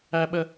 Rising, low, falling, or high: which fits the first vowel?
high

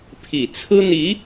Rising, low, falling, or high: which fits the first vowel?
low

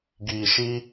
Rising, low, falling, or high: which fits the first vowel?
low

